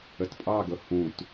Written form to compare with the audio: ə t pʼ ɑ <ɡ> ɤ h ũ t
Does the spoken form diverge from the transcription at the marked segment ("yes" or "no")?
no